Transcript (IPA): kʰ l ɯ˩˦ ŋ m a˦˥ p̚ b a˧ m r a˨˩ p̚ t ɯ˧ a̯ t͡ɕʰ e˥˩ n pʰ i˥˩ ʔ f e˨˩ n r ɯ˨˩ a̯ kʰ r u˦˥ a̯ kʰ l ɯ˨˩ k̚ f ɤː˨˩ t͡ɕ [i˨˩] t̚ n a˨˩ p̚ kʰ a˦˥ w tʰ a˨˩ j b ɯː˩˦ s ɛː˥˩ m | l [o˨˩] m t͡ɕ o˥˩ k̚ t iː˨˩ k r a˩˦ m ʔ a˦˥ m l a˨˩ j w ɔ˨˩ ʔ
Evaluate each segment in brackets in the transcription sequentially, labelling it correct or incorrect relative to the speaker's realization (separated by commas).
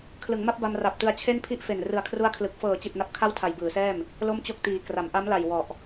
correct, incorrect